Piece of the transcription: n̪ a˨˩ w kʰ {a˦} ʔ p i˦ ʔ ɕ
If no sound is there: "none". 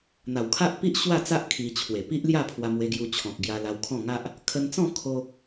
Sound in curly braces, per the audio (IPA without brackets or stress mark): a˦